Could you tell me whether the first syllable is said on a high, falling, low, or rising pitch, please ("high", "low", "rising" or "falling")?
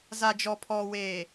low